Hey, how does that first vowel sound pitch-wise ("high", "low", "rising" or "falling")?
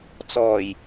low